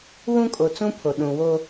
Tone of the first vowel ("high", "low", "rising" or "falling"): high